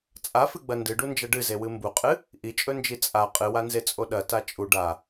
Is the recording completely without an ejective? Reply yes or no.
no